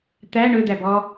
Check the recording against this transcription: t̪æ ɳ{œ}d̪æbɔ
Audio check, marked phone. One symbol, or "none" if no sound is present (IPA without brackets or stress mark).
ɵ